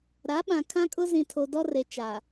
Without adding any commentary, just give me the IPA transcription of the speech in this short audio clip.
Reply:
ɾa˨˦ɓã˨ kʰã˦kʼʊ˦zĩ˨ tʰo˨dɔ˦re˨ t͡ʃaː˨

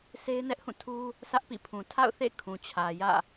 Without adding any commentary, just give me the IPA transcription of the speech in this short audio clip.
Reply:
se˦ɪ̯nɛ˦ʔhũ˦˨tʰu˦ | sä˦ʔpḭ˦˨pʰũ˨ tʰa̰˦˨ʊ̯θḛ˦˨ kʰũ˨t͡ɕʰä˨ jä̰˦˨

